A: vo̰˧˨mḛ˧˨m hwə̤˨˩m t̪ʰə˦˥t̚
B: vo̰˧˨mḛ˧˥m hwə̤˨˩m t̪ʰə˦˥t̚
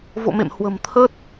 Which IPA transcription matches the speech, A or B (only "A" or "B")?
A